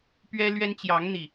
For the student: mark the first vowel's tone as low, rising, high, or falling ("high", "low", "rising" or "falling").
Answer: high